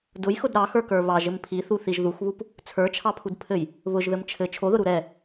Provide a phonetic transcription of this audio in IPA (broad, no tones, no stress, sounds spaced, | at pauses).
d ʊ j x ʊ d ɾ ɑ x ə˞ k ə˞ β ɑ ʒ ɘ m pʰ i θ u θ i ʒ ð u x β u p | t͡sʰ ə˞ t͡ʃʰ ɑ pʰ u d pʰ ɘ j | β ʊ ʒ ð ɘ m t͡ʃʰ ɘ t͡ʃʰ o ð ʊ ɾ u ɾ ɛ